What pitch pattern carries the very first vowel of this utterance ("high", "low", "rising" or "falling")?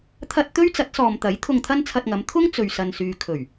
high